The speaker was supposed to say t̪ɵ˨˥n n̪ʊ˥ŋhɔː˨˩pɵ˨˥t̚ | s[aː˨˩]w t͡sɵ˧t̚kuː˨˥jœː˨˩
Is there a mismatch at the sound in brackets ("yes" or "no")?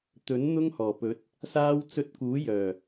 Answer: yes